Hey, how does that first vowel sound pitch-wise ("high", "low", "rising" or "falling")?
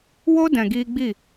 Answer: high